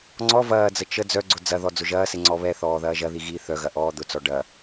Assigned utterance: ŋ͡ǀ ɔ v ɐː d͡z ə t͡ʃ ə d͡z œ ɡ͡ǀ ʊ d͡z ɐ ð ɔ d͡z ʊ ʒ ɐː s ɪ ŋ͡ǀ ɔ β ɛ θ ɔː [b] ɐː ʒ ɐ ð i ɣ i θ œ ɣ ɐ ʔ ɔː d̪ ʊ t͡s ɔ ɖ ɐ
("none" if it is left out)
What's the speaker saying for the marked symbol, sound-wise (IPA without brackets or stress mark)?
ð